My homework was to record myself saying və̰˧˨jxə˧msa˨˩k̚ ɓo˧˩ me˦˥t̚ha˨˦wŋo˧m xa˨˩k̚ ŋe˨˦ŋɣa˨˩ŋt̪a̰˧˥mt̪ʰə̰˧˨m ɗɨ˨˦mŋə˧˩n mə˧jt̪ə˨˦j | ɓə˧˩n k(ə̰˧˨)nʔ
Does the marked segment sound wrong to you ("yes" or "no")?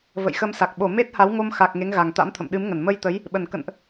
no